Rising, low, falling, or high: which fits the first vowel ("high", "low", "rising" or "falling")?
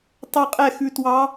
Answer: falling